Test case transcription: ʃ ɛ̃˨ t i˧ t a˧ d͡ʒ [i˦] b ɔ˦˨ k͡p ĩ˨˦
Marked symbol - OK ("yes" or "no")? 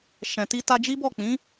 yes